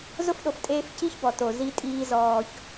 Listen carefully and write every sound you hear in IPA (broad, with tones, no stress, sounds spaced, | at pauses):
z ʊ˦ f ɗ o˨ f tʼ eː˦ f c i˦ ç b ɔ˨ t o˨ z i˦ tʼ iː˦ z ɔː˦ ç